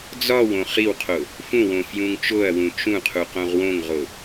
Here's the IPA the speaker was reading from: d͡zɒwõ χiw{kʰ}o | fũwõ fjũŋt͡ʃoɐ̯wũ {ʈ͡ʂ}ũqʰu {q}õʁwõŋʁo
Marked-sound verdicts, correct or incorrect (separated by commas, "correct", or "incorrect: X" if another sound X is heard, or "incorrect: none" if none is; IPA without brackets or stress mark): incorrect: qʰ, incorrect: t͡ʃ, correct